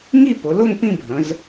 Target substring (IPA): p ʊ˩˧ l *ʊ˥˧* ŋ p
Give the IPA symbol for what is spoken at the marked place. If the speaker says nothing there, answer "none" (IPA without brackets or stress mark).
ʊ˥˧